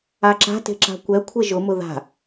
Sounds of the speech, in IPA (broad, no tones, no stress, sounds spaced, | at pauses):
a ǁ a̤ t e̤ ǁ a̤ kʷ ɛ kʷʰ e ʒ ʊ m ʊ ð a̤